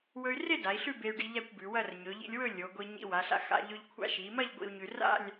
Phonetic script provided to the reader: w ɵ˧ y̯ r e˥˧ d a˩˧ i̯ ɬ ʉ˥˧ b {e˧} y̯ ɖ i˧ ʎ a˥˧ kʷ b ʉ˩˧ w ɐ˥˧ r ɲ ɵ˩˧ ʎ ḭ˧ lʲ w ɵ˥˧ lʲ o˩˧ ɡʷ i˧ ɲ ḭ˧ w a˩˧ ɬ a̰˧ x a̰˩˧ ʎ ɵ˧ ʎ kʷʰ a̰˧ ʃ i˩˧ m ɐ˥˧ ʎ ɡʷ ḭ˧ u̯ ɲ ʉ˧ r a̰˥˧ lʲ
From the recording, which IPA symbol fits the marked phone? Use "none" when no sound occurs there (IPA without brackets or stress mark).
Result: e˧